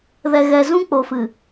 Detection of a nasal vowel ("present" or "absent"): present